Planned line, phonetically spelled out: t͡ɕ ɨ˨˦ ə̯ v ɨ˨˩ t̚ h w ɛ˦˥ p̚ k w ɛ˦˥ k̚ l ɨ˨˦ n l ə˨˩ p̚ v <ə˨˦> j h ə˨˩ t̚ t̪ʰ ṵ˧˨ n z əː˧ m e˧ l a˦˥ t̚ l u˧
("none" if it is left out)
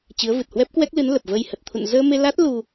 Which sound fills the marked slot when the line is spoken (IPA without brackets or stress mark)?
ə˧